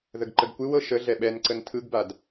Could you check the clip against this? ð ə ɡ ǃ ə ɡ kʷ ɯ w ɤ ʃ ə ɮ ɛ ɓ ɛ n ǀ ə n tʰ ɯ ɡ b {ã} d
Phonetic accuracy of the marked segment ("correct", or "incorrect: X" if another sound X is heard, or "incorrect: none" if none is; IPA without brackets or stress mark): incorrect: a